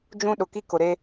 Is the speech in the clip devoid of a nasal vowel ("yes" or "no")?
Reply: no